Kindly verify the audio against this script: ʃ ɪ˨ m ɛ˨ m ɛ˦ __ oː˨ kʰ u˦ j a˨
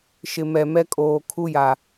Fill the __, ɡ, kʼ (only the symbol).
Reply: kʼ